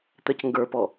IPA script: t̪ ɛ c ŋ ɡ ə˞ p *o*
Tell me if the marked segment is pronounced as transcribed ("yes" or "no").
no